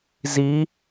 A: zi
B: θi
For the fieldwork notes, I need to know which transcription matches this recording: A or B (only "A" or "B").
A